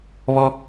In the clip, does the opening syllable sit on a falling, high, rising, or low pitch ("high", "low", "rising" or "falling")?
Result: high